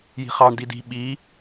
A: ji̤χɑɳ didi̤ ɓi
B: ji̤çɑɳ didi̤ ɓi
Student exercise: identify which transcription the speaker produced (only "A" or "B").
A